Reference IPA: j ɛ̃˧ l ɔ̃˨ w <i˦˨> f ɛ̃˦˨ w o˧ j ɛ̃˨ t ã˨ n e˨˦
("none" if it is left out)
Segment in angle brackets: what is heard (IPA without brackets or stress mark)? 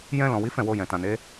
i˨˦